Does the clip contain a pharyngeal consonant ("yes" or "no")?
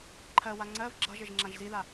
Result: no